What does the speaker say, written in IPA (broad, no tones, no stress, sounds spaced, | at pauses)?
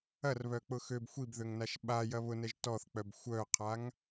ɐ r β œ k͡p ʊ x ø b xʷ i b ð ø ŋ n a ʃ ɓ a j ɐ β ʊ n ɛ ʒ t ɔ θ k͡p œ b xʷ œ qʰ a ŋ